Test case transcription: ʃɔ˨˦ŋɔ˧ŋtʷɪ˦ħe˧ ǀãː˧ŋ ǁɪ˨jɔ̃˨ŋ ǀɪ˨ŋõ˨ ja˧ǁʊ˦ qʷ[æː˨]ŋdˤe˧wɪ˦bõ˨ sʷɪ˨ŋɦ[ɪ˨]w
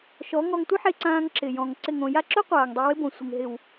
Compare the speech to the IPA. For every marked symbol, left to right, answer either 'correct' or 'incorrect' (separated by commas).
incorrect, correct